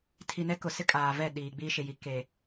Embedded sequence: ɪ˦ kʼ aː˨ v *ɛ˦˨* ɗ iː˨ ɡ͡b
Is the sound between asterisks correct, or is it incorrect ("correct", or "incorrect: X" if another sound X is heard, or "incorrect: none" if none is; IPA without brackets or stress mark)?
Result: correct